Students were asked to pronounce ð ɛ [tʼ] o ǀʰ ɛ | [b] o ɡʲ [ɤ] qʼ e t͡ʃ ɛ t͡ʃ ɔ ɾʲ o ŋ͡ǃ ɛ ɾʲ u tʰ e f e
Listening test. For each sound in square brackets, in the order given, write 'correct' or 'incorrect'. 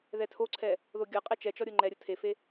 incorrect: tʰ, incorrect: ð, correct

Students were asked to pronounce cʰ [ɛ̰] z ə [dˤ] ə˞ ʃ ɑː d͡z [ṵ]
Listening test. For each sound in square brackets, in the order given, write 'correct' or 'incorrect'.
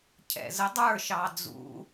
correct, correct, correct

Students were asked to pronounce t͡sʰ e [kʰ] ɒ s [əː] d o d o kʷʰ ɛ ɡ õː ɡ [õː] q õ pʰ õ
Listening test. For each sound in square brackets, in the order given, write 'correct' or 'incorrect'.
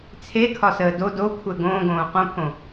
correct, correct, correct

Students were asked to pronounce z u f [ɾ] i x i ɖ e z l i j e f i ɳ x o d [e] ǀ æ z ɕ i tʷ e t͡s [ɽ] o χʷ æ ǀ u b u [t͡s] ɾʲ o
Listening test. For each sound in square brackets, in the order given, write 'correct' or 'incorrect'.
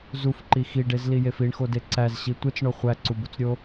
incorrect: ǃ, correct, incorrect: ɳ, correct

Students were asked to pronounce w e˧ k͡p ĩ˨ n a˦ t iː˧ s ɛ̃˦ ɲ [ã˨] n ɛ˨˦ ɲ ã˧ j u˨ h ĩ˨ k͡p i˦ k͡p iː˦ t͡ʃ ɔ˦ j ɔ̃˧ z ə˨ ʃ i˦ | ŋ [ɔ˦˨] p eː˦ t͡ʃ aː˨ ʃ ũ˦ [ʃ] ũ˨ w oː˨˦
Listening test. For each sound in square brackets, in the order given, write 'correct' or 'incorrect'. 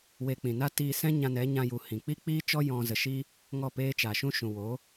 incorrect: ã˧, correct, correct

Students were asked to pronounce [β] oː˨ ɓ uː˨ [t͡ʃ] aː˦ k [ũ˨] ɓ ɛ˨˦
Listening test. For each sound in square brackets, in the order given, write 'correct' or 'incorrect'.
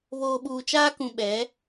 correct, correct, correct

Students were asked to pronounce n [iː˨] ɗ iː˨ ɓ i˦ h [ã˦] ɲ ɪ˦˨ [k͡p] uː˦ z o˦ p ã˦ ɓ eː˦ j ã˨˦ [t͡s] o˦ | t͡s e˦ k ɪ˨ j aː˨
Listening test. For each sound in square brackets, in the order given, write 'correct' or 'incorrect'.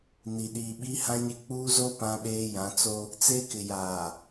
incorrect: i˨, correct, correct, correct

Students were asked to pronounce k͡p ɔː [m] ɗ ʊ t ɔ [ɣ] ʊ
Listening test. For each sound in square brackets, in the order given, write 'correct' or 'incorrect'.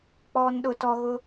incorrect: n, correct

